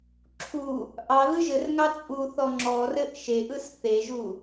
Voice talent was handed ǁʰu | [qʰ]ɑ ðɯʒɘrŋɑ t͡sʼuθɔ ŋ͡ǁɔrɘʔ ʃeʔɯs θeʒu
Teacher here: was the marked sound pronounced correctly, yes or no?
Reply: no